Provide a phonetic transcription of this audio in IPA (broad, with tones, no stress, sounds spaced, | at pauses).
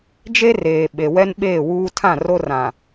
d͡ʒ e˦ r eː˨ ɓ e˨ w ɛ˦ n ɓ eː˦˨ w uː˦ tʰ ã˦˨ r o˦ r ã˨